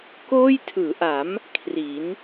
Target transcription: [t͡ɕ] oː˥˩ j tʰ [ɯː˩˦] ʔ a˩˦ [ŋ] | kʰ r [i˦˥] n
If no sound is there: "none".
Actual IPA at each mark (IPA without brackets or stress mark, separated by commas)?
k, ɯː˩˦, m, i˩˦